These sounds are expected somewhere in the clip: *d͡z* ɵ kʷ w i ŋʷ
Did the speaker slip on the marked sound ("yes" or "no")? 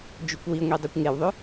yes